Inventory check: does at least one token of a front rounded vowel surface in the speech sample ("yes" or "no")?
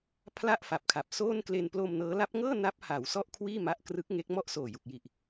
no